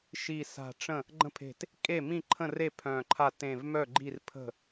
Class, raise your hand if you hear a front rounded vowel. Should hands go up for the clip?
yes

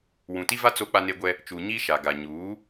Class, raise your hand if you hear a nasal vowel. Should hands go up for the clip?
yes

